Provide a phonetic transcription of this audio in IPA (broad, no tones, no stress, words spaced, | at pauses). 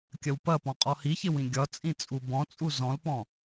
kʲɐwpɐpɔ̃ qʼɔhiçɪwĩ ɡʲɒt͡sʼĩ t͡sʼubɔ̃t͡sʼu zɔ̃lpɔ̃